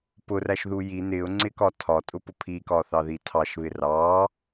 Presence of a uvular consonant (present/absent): absent